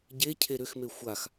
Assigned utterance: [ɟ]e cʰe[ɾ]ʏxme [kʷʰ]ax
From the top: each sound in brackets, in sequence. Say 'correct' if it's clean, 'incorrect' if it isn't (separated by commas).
correct, correct, incorrect